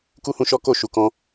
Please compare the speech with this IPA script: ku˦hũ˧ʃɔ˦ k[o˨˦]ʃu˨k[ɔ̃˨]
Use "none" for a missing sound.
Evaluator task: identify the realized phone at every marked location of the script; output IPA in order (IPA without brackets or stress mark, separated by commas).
o˦˨, ɔ̃˧